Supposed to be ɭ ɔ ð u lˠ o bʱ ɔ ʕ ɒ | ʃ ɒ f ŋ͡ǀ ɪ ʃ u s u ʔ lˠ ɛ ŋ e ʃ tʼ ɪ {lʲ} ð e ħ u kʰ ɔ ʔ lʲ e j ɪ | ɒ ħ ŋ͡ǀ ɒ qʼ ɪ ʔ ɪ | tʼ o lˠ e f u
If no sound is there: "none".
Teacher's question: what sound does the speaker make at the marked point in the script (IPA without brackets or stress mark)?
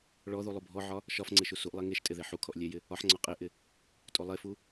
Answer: none